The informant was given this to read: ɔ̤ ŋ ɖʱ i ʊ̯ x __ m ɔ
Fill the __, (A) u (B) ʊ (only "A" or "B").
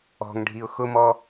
B